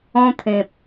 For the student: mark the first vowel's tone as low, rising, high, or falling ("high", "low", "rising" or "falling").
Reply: high